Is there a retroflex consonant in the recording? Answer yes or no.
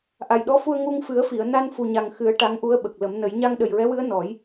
yes